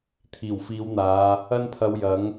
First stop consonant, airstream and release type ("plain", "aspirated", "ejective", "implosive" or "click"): aspirated